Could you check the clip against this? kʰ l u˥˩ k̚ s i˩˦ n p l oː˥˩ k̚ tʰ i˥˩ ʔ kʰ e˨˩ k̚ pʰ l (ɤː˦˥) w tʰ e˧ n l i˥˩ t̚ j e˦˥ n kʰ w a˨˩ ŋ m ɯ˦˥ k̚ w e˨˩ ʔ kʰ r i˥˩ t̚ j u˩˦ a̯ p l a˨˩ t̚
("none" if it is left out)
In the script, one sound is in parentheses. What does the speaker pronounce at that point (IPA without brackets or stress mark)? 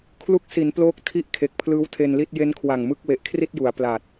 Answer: ɯː˦˥